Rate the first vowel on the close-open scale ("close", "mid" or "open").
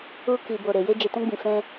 close